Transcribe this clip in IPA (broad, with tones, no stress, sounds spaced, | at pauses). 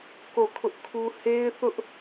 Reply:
k o˦˨ kʰ ʊ˦ ʔ kʰ u˦ h e˦ ɪ̯ θ ʊ˦ ʔ